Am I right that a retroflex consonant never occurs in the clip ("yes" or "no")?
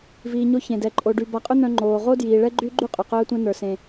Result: no